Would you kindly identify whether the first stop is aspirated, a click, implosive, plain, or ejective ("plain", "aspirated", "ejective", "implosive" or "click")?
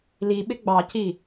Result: implosive